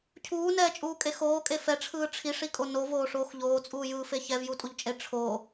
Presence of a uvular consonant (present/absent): absent